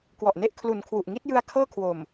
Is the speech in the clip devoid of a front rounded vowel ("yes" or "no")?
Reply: yes